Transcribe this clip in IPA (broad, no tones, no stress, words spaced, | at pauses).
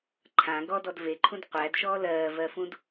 ǃʰã ɡɔdɔd veǃʰũd qʷædʃɔː lɜːvɜfũd